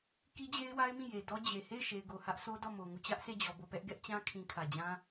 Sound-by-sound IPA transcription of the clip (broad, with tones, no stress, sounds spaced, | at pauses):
k i˦ d͡ʑ e˦ ɪ̯ w a˦ ɪ̯ m ĩ˦˨ j e˨ d ɔ˦ d͡ʑ e˨ h e˦˨ ɪ̯ ʃ e˨ ɪ̯ ɡ o˨ h ä˦ ʔ s o˦ d ɔ˦˨ m o˨ ŋ u˦˨ t͡ɕ ä˦ ʔ sʰ e˦˨ d͡ʑ ɔ˨ b o˦˨ p ɛ˦ ʔ ɡ ɛ˦ ʔ t͡ɕ ã˦ kʰ ĩ˨ kʰ ä˨ d͡ʑ ã˦